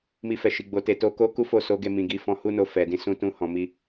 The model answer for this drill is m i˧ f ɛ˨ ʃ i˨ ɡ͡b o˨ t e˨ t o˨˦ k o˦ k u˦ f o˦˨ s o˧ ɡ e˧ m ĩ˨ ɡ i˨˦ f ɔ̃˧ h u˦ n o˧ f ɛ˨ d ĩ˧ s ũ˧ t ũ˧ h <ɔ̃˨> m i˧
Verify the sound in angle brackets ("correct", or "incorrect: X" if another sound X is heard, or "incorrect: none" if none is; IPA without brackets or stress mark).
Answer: correct